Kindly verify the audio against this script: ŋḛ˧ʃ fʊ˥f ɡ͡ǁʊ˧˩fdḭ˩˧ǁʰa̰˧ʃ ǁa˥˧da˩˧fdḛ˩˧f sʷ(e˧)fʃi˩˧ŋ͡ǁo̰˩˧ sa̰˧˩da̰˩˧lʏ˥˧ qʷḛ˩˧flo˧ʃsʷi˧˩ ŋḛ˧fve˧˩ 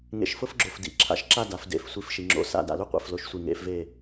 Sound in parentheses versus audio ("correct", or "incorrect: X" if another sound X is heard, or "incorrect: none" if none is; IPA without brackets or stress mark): incorrect: i˧